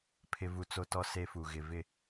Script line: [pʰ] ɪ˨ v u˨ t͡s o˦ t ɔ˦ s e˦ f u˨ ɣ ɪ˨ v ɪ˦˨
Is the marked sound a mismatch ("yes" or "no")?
no